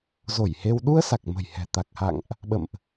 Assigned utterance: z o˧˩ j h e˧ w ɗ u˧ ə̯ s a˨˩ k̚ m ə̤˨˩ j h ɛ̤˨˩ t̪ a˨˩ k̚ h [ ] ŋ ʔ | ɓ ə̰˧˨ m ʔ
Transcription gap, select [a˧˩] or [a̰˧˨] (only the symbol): a̰˧˨